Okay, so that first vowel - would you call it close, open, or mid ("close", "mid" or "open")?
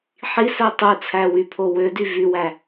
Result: close